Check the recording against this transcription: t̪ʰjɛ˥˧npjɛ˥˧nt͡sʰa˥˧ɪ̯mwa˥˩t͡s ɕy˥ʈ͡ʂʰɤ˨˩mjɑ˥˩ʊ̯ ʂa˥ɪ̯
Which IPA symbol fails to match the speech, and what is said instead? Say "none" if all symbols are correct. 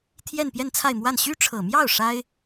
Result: t͡s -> n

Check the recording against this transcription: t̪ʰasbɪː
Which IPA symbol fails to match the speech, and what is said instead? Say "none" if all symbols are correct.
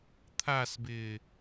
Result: none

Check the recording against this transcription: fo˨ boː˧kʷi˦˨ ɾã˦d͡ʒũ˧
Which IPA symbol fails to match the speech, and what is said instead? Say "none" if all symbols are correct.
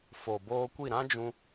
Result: none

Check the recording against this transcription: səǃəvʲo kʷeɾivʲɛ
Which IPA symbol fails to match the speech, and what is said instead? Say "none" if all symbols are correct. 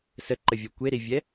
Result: none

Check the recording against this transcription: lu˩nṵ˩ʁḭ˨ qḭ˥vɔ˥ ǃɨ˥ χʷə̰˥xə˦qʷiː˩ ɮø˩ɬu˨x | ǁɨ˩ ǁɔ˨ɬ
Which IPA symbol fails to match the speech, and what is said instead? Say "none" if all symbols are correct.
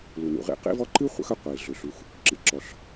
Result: none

